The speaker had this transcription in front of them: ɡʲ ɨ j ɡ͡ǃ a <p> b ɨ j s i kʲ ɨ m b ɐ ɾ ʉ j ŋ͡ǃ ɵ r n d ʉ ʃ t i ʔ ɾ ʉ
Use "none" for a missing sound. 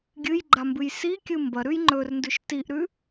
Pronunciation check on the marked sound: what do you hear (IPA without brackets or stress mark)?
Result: m